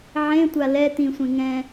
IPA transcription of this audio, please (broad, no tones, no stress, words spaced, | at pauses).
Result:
ʕẽtʷa lɛ t̪ĩsʷẽ ŋɛ̃